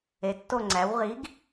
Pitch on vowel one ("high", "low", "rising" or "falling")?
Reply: rising